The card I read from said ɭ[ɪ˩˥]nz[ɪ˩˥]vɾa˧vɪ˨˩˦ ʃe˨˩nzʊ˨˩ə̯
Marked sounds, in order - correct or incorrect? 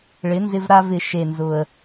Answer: correct, incorrect: ɪ˧

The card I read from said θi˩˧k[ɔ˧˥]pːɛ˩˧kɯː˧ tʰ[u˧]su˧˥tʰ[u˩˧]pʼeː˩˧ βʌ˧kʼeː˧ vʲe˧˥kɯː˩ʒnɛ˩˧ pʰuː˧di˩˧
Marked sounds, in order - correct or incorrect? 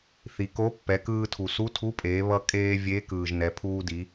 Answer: incorrect: o˧˥, incorrect: u˩, incorrect: u˧˥

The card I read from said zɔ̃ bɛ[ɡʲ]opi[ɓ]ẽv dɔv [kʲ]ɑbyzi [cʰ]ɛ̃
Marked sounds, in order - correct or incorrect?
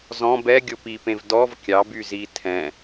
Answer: correct, incorrect: p, correct, incorrect: tʰ

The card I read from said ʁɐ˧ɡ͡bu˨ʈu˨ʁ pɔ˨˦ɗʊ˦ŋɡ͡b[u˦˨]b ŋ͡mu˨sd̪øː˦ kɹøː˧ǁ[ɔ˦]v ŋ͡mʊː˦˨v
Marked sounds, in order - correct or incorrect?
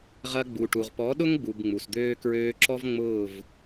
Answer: incorrect: u˨, correct

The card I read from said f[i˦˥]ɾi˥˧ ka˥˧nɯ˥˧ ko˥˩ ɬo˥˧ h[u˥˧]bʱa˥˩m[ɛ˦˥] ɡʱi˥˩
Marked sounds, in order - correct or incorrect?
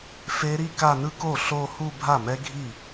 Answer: incorrect: e˦˥, correct, correct

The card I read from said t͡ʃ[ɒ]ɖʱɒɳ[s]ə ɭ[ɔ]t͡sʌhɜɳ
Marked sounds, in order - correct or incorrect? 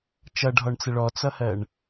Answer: incorrect: ʌ, incorrect: t͡s, correct

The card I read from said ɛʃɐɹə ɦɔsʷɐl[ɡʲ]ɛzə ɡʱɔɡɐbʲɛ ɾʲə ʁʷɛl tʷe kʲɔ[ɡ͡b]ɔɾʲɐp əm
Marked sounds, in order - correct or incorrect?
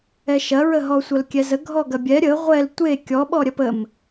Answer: incorrect: kʲ, incorrect: ɓ

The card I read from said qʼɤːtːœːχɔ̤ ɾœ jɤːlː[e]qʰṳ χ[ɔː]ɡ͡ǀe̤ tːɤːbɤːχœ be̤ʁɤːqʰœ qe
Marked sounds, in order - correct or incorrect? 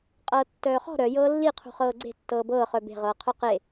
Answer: incorrect: i, incorrect: ɤː

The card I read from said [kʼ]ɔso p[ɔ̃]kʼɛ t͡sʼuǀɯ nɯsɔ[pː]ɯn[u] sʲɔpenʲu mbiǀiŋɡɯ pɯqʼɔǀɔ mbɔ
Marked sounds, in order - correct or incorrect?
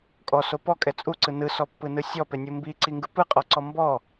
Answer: correct, incorrect: ɔ, correct, incorrect: ɯ

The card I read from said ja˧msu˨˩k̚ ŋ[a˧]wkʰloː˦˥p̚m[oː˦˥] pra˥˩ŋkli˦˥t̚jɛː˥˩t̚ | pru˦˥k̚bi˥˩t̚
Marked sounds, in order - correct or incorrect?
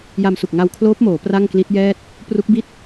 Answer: correct, incorrect: oː˩˦

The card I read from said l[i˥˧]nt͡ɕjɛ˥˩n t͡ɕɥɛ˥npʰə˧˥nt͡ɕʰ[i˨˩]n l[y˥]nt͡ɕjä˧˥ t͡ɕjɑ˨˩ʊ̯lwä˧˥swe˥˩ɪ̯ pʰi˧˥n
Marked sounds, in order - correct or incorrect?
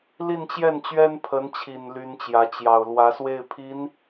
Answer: correct, correct, correct

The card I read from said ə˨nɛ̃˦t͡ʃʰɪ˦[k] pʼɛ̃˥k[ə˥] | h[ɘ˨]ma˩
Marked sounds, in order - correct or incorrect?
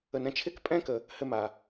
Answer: correct, incorrect: ə˨, correct

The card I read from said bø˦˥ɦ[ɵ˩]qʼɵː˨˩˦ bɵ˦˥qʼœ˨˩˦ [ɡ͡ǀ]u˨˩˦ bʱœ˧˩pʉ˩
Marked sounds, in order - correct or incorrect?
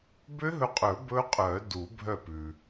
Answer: incorrect: ɵ˧˩, incorrect: d

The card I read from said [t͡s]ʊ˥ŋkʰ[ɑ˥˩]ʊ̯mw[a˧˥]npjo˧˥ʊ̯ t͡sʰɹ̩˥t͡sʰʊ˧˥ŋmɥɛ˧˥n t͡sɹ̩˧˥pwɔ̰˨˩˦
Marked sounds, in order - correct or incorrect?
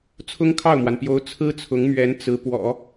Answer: incorrect: t͡sʰ, correct, incorrect: a˩

